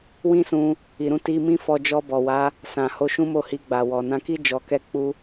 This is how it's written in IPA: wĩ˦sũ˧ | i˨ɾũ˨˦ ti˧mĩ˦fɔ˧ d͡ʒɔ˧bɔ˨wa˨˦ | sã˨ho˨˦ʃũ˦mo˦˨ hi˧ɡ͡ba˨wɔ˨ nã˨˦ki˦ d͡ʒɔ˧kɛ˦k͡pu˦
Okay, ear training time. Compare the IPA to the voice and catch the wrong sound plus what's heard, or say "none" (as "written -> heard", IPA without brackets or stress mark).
none